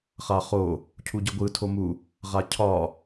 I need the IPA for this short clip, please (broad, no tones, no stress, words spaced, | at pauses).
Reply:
χaχo | cʰuɟɯɡʷɯ tʰomu | ʁacʰɒ